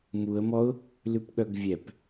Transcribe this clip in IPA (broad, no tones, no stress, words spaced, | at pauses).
muə̯mɔʊ̯ | lʉpɠœɡvʲɛp